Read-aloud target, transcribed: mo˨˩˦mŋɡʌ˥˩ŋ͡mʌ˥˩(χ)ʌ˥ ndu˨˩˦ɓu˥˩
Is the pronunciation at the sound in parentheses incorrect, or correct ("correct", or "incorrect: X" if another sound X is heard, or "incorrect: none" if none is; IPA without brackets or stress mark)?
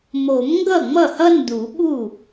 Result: incorrect: h